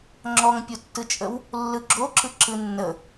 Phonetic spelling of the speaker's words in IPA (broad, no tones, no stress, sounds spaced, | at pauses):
ŋ͡ǁ ɔ ŋ pʲ u tː ɯ t͡ʃʼ ə w | lː ɯ ɡ͡ǁ o ǁ ɯ ǁ ɯ nː ə